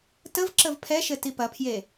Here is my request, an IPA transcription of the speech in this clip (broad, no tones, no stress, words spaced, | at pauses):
təvǁəv pʰɛʃɘ tipɐpʰje